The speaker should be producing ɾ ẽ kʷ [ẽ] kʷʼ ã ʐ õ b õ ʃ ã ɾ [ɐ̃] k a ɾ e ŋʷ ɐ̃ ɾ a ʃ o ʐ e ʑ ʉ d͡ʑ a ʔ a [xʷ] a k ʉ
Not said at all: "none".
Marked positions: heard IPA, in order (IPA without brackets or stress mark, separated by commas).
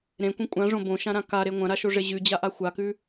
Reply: ẽ, ã, xʷ